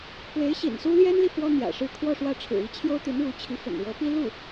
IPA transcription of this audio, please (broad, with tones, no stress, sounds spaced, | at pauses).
k w e˧˥ ɪ̯ ɕ ḭ˨˩ n s u˥ l j ɛ˥ n l i˨ f w ɔ˥ n̪ j ä̰˨˩ ʂ ɻ̩˥˧ kʰ w ɔ˥˧ ʂ w ä˥˩ ʈ͡ʂʰ ɻ̩˨˩ i˧˥ t͡ɕʰ j o˥ ʊ̯ t̪ i˧˥ n ɻ u˧˥ t͡ɕʰ i˧˥ f ə̰˨˩ n ɻ ɤ˧˥ p i˥ l u˥˩